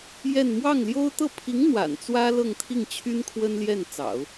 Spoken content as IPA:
j ɛ˥˧ n m w ɑ˥˩ ŋ l j o˥ ʊ̯ t̪ ɤ˥˩ pʰ i˧˥ ŋ n̪ w a̰˨˩ n t͡s w ä˥ l ɤ˥˧ ŋ t̪ʰ i˥˩ ŋ t͡ɕʰ y˥ n kʰ w ə˥ n l j ɛ˥˩ n t͡s ɑ̰˨˩˦ ʊ̯

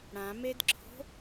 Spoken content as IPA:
ɽ ã m e d ǁʰ o̤

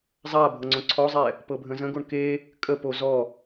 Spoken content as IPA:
zˤ a bʱ ɤ ŋ͡ǀ õ ǀʰ ɔ zˤ ɛ | p ɤ bʱ ə̃ z ə̃ ɡ o ɳ k e | kʼ ə p o z ɔ

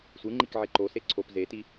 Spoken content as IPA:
sʷ ɯ ŋ͡ǃ i k ʕ e ǃ o s e ǀʰ o p z e t i

